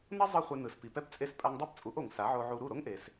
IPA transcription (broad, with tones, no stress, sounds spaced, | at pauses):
n ʌ˥ zˤ ɯ˥ χʷ ɛ˧ n ɯ˩ s p i˩ p ɛ˥ p t͡sʼ e˧ s pʼ a˧ ŋ dˤ ɯ˥˩ p t͡sʼ u˩˥ ʔ o˩ ŋ s a˩˥ ʕ o˧ ʕ u˧ ɾ u˥˩ ɾ o˥ ŋ ʔ e˩ s